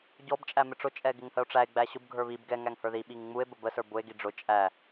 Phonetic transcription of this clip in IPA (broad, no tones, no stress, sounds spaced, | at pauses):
ɟ ɔ b t͡ʃʼ æ m ɪ ʈ͡ʂ ʊ t͡ʃʼ ɛ ɡ ɪ ŋ h ə o̯ ʈ͡ʂ æ e̯ ɡ͡b æ ɕ ʊ b ɡʱ ə˞ β i b ɡ ɛ ŋ æ ŋ h ə˞ ð i ɓ i ŋ ŋ͡m u e̯ b ə b ə s ə˞ b ʊ e̯ ɡ i ɖ͡ʐ ʊ t͡ʃʼ æ